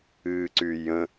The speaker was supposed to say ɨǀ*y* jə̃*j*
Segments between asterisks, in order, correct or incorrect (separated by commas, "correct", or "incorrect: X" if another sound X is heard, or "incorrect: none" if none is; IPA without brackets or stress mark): correct, incorrect: none